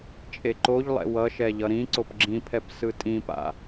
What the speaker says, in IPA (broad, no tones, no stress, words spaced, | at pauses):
t͡ʃʼeǃoʎlˠɛ̰ wʌʃɛ ʎʌɾĩǀop ɡ͡ǁĩpʰɛp sɯtʼĩpa̰